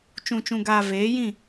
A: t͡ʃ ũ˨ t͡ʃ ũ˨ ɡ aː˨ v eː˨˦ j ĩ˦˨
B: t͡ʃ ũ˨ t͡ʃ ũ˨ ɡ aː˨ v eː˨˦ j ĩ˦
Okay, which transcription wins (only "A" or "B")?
A